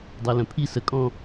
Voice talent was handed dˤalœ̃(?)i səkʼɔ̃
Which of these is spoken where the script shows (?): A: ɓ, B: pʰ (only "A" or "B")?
B